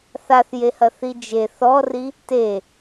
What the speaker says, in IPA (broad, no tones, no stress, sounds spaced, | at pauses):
θ a θ j e h ɐ θ i d͡ʒ e θ ɔ r i | t e